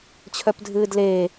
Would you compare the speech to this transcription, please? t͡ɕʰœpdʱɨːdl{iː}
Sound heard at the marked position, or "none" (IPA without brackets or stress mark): eː